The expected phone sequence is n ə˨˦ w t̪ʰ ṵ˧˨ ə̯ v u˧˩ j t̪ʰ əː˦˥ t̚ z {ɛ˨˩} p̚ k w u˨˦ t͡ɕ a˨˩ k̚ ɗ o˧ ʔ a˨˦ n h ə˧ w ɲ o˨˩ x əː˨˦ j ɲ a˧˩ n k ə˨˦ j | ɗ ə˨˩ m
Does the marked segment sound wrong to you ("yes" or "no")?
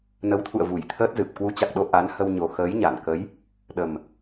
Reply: yes